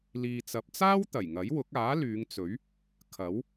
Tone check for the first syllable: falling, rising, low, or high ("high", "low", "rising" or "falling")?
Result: low